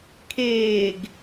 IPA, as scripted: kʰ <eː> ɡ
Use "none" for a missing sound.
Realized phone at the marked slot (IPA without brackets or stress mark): eː